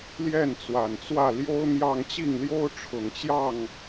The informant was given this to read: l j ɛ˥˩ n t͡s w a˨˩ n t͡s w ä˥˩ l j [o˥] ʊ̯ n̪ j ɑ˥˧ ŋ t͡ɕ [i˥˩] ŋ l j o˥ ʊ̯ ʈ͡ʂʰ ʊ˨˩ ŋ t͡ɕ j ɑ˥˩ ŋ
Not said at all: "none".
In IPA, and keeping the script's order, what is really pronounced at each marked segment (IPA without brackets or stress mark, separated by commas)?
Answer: o˥, i˥˩